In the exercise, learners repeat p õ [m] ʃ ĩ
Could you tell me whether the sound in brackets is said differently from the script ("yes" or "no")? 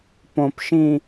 yes